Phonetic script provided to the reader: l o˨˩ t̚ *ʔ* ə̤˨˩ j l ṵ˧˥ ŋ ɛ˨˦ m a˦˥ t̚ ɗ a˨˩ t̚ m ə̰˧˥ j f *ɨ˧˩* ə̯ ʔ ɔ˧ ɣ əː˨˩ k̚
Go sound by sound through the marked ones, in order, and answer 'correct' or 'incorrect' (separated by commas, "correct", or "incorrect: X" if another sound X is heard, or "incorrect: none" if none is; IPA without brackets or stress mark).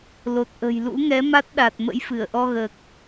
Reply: correct, correct